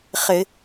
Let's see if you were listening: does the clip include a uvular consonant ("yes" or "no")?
yes